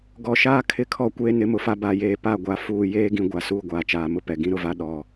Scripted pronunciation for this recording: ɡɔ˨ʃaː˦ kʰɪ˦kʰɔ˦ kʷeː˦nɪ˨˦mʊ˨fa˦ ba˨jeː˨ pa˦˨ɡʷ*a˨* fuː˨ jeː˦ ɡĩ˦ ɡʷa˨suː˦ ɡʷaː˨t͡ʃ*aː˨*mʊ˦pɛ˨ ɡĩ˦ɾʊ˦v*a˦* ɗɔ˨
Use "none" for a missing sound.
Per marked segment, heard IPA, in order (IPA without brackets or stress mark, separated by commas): a˨, aː˨, a˦